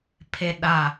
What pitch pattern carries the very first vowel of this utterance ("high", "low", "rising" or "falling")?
high